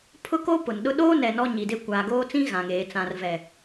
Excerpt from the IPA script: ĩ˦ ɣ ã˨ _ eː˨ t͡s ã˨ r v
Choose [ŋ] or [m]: ŋ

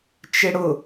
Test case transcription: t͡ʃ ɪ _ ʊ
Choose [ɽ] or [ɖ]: ɽ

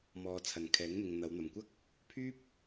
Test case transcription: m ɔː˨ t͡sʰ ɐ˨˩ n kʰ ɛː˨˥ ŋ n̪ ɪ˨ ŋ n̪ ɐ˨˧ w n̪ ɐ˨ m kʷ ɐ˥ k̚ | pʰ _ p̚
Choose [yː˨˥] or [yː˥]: yː˥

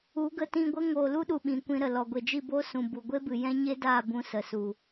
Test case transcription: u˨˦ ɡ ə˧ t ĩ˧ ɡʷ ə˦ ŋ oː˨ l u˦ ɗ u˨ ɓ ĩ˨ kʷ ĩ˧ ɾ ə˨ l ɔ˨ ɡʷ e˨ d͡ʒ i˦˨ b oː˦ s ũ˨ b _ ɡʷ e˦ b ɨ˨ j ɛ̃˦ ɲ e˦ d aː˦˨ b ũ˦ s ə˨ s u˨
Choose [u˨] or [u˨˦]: u˨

